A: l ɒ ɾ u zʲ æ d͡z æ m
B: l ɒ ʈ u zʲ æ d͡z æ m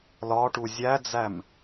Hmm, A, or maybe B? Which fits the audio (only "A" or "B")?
B